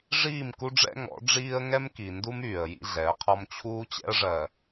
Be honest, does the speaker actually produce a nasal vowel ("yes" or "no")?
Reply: no